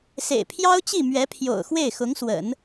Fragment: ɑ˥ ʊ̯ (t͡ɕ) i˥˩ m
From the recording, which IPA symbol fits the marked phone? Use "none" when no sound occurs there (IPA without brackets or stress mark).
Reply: t͡ɕ